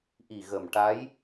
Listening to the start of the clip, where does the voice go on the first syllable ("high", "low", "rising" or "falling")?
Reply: low